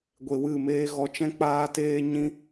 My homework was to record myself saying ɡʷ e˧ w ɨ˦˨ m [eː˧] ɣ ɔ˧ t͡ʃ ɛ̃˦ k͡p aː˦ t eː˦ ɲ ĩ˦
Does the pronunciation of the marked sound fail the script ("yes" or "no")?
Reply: yes